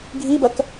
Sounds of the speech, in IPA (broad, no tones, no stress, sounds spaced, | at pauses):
ɡʱ i b ɐ k